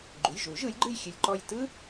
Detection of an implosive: absent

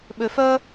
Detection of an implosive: present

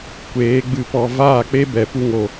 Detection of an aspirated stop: absent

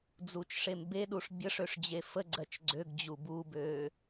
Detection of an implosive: present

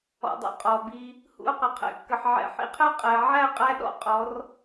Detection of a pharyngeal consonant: present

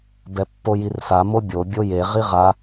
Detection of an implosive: absent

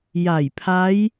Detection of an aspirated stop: present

